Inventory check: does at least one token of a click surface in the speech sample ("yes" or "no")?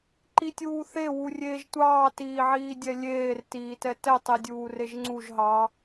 yes